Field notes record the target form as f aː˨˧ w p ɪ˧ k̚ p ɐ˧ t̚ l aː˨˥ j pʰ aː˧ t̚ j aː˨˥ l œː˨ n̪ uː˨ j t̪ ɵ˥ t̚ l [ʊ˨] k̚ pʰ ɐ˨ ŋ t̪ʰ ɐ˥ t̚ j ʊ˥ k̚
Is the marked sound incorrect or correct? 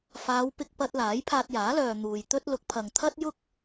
incorrect